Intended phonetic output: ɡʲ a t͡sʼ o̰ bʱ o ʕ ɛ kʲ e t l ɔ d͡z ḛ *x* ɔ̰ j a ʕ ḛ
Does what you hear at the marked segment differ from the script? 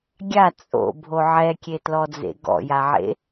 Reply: yes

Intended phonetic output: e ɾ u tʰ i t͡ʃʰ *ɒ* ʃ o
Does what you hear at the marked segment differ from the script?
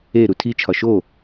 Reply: no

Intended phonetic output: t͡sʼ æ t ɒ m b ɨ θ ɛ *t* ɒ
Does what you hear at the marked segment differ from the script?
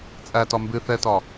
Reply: no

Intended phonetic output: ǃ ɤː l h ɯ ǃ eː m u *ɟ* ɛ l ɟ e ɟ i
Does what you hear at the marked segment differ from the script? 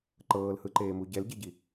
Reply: no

